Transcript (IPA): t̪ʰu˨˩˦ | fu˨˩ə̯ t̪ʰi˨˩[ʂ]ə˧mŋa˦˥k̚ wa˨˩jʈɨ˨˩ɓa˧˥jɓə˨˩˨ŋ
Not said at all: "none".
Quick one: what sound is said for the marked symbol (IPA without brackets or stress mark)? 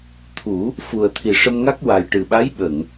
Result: ʂ